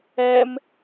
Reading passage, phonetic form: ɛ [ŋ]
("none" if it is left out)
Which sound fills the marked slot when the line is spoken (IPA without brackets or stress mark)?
m